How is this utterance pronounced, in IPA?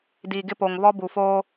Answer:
d iː˨ ɡ ɪ˦ p o˨ ŋ β ɔ˦ b u˨ f oː˦

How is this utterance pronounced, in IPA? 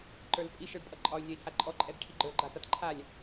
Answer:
ǃ ə˞ l pʼ i ʃ ə˞ ɖ pʼ ʌ ǃʼ ɒ y̯ nʲ ɒ i̯ tʰ a ǃʼ ɔ ǃʼ ɛ b ʈʰ i ɡ͡ǃ ə˞ ɡ͡ǃ a t ʌ t ǃʰ a lʲ

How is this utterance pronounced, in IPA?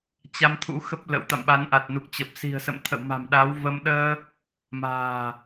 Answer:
t͡ɕ a˧ m t̪ʰ ṵ˧˥ x ə˦˥ p̚ l ə̰˧˥ w t̪ a̰˧˨ m ɓ a˨˦ n ʔ a˨˩ t̚ n u˨˩ k̚ t͡ɕ ə˨˩ p̚ s i̤˨˩ ə̯ s ə̰˧˨ m t̪ʰ ə̰˧˨ w m a̤˨˩ m ɗ a˨˦ w v ə˧ m ɗ əː˧ | m a̤ː˨˩

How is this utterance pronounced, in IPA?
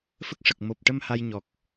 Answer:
f ə˦˥ k̚ ʂ ə˨˩ k̚ m o˨˩ p̚ ʈ ə˧ m h a˧ j ɲ ɔ˨˩ k̚

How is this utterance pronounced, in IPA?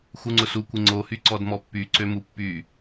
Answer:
x u ŋ͡ǀ ʊ s u kʷ ɪ ŋ͡ǀ o h y ǀ ɔ d m ɔ pː y ǀ ø m u pː y

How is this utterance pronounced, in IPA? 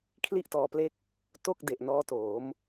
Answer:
kʰ l i˥˩ ʔ t ɔː˧ p l e˥˩ k̚ | t o˥˩ k̚ d e˨˩ ʔ n ɔː˦˥ t oː˩˦ m

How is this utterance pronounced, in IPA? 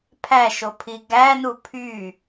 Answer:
pʰ æ ʃ o pʰ i ɡ æ n u pʰ y

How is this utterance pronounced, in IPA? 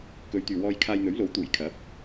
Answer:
k ɵ˨˧ ɥ t̪ yː˨ w ɔː˧ j kʰ aː˧ j n̪ ɵ˨˥ ɥ l o˨˥ w t̪ uː˨˩ j kʰ ɐ˨˥ p̚

